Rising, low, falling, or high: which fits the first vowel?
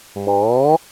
rising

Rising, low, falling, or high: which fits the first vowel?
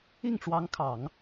falling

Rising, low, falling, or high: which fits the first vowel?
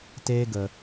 high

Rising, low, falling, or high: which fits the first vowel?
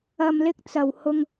low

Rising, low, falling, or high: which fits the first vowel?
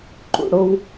low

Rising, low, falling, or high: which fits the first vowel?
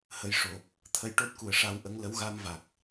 rising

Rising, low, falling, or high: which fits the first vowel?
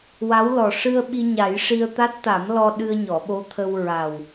rising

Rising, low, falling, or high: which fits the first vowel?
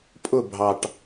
falling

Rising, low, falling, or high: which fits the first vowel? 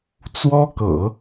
high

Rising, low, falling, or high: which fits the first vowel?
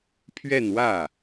falling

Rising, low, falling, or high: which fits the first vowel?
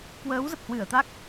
rising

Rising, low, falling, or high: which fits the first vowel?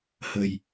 low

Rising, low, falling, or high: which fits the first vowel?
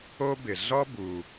high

